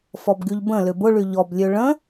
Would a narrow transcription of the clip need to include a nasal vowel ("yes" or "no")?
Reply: yes